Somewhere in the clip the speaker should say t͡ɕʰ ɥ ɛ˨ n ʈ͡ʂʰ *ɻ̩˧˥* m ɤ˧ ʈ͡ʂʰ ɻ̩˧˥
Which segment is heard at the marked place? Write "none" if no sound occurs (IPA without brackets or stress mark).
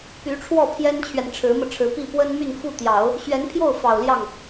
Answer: ɻ̩˧˥